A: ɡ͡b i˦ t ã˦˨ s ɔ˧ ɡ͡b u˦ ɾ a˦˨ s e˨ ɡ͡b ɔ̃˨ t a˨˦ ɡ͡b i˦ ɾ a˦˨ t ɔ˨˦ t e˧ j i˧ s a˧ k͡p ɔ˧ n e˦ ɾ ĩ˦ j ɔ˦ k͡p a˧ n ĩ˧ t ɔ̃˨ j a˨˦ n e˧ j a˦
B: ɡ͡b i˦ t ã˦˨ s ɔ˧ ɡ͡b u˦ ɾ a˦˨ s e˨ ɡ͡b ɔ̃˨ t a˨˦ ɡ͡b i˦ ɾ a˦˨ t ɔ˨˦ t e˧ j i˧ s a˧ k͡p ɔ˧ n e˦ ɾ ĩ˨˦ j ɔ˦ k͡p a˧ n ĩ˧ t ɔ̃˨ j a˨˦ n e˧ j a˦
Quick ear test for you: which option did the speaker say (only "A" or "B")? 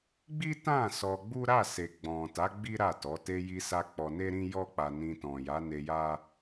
A